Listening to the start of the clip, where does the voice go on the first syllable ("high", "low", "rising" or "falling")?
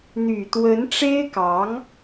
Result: low